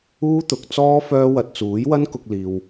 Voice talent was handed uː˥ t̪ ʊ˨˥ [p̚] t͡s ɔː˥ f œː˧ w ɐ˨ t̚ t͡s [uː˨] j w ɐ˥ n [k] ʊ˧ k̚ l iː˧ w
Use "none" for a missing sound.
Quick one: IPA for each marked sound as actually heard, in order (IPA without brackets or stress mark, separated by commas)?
k̚, uː˨˥, k